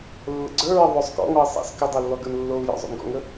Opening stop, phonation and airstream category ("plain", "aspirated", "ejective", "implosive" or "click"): click